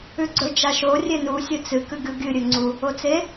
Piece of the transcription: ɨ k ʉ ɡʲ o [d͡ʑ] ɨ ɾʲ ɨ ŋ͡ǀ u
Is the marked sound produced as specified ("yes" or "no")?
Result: no